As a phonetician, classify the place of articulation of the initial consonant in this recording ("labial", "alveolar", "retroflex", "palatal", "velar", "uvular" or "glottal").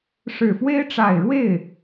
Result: retroflex